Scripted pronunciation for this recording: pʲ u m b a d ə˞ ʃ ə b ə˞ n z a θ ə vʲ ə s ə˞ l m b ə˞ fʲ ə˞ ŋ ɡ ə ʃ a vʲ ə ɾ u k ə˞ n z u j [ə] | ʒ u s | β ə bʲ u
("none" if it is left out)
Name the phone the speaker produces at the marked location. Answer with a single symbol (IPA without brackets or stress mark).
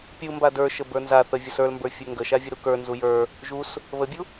ə˞